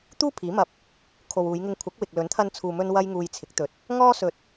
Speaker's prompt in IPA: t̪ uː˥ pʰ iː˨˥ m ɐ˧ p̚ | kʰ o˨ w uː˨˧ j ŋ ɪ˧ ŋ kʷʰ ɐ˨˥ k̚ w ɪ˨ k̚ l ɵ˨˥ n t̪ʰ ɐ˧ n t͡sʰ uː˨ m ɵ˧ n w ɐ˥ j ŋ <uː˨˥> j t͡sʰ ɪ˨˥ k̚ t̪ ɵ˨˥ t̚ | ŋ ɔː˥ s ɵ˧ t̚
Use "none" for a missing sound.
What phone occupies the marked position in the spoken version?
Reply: uː˧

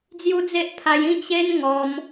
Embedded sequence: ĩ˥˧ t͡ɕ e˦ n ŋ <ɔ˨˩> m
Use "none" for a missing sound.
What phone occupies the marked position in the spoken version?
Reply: ɔ˧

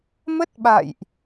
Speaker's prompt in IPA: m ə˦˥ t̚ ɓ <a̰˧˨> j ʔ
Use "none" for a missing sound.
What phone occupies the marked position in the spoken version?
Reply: a̰˧˨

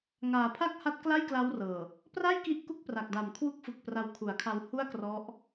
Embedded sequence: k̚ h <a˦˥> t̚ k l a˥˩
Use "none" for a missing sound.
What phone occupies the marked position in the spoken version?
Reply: a˦˥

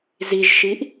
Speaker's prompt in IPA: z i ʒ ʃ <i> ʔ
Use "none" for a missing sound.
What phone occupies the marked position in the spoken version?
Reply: i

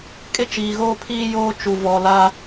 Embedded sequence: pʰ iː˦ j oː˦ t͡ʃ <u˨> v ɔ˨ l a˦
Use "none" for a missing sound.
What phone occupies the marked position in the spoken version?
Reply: u˨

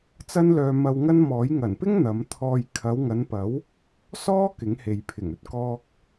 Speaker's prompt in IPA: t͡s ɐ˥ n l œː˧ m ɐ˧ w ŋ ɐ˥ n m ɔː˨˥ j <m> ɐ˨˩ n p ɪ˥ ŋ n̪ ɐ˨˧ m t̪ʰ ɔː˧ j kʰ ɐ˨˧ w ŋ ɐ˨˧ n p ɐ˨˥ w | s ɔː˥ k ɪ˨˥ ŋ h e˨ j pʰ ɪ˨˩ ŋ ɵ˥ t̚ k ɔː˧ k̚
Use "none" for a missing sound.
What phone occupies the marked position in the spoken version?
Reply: ŋ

